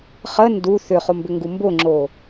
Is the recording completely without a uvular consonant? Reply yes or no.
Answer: no